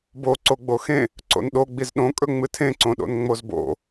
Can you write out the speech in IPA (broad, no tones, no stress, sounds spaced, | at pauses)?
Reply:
b o ǀ o ɡ͡b o x ẽ | ǀ o̰ n ɗ o ɡ͡b i z ɗ õ kʼ ɵ ŋ͡m ɨ tʰ ẽ ǀ õ ɗ o̰ n ŋ͡m o z b o̰